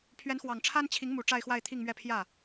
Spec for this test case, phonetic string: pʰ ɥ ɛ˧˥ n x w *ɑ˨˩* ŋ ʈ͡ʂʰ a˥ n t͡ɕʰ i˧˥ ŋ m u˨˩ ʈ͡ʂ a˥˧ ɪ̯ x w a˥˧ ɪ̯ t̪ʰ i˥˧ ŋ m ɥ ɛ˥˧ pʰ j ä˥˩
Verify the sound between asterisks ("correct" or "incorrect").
correct